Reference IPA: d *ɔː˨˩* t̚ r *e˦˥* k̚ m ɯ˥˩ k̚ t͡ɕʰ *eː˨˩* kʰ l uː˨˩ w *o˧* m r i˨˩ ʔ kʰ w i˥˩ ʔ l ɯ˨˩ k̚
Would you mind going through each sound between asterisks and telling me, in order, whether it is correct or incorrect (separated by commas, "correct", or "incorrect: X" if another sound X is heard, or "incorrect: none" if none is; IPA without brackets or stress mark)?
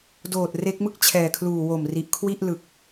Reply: incorrect: oː˨˩, correct, incorrect: ɛː˨˩, incorrect: o˨˩